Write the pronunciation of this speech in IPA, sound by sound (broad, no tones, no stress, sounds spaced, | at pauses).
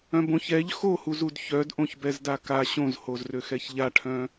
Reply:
œ̃ b õ ç ɛ ʎ x o h u z u d ç œ d ʔ õ ç b ɛ z d a k a ɕ õ z h o z r ø x ɛ ç ʎ a ʈʰ œ̃